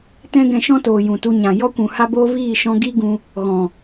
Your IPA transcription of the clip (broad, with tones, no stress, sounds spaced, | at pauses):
t ɛ̃˦ ɡ ɛ̃˧ ʃ ɔ̃˦ t oː˨ j ũ˨ t u˧ ɲ ã˨ j ɔ˦ kʷ ũ˨ h a˦ b oː˦ v iː˦˨ ʃ ɔ̃˧ ɡ i˦ ɡ ũ˧ | ɣ ɔ̃˨